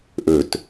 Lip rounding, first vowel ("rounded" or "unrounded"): rounded